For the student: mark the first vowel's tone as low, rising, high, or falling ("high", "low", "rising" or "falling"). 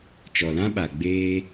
low